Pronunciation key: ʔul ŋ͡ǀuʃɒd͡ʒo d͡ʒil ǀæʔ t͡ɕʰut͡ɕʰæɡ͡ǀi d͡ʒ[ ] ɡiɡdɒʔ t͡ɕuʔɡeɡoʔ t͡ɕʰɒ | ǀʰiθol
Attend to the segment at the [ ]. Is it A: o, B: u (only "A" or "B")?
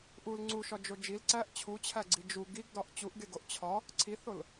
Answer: B